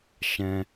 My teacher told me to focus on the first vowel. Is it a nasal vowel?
yes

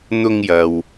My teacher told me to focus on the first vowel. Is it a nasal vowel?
no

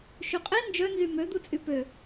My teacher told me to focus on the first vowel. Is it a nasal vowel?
no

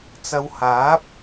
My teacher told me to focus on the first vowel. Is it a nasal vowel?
no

